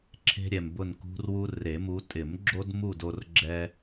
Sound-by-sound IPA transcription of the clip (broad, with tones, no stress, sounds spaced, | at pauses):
ǁʰ e̤˦ ɾʲ ɛ˨ m b ʊ˦˨ n k ṳ˦ r w u˦ r e˨˩˦ m u˨˦ tʼ ɪ˨˩˦ m ɡ͡ǁ o˦ d m u˦˨ d o˦ r ɡ͡ǁ ɛ˦